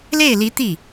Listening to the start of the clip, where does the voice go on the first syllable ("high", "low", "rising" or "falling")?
falling